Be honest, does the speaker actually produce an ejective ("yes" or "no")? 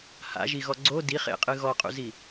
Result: yes